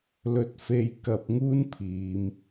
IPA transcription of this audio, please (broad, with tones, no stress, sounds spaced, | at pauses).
l ɵ˧ t̚ f e˧ j k ɐ˧ p̚ ŋ uː˥ n pʰ iː˨˧ m